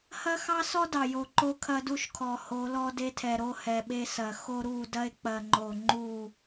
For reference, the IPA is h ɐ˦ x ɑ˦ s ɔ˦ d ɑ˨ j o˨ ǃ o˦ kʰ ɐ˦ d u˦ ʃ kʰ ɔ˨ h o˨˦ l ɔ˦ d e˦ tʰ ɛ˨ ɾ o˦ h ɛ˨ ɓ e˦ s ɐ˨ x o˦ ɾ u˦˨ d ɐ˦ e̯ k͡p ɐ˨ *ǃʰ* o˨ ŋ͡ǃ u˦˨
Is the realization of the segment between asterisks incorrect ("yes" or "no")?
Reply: yes